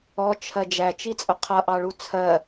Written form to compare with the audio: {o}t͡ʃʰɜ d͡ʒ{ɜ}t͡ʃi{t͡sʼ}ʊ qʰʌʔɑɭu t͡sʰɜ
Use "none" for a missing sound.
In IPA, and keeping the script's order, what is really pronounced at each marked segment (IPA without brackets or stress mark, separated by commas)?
ɔ, æ, t͡sʼ